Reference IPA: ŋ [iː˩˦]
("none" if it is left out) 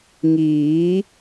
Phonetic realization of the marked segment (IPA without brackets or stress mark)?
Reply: iː˩˦